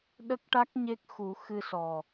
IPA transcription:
ɗ ə˦˥ k̚ ʈ a˦˥ k̚ ɲ e˦˥ k̚ x u˨˩˦ x ɨ˧ s ɔ˨˩

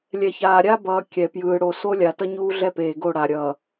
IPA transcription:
lʲ ɛ˨ ç aː˨ ɾʲ a˦ b ʌː˨ kʲ ɛ˨ p j ɯː˨ ɽ o˨ s o˦ lʲ a˨ t ʌ˦ ɲ uː˦ ɮ ɛ˦ p eː˨ ɡ o˦˨ ɽ a˨ ɾʲ ʌː˨

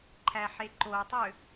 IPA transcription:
ǃʰ æ ħ e ǃ o tˤ ø

